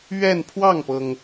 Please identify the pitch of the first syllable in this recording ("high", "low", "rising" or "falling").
falling